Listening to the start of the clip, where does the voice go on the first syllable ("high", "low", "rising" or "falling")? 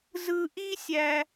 high